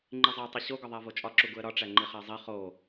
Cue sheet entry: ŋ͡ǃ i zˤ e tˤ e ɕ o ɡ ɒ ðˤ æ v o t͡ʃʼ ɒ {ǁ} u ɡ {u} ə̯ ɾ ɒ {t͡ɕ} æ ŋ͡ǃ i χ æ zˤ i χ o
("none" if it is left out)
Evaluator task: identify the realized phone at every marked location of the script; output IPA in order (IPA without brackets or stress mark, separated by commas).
ǁ, u, ʈ͡ʂ